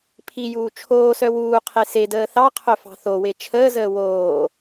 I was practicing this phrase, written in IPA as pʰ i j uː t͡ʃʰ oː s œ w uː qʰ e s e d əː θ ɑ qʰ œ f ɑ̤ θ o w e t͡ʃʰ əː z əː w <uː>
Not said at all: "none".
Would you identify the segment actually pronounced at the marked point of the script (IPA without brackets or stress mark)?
oː